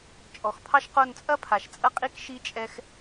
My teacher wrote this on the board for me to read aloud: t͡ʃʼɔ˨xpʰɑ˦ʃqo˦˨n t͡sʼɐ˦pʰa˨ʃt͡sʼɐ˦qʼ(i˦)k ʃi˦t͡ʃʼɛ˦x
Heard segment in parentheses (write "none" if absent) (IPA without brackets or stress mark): i˦